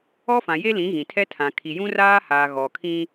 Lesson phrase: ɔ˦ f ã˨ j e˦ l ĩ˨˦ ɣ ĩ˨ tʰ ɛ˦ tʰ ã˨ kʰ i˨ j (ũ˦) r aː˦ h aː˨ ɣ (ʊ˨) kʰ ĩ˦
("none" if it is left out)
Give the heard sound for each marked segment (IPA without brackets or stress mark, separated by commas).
ũ˦, ɔ˨